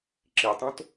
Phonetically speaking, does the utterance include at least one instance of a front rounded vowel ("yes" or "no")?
no